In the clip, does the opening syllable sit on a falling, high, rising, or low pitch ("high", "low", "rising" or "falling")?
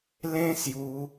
high